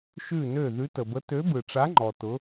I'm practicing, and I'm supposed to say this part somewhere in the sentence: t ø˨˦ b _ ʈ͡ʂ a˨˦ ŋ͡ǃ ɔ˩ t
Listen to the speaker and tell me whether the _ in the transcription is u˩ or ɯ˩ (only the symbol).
ɯ˩